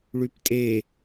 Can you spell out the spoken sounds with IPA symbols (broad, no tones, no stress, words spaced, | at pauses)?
ɭyptʼe